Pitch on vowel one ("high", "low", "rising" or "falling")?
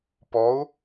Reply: rising